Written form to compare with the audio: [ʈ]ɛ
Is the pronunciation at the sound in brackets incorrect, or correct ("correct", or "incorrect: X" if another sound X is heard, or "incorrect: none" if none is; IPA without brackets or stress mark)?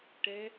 correct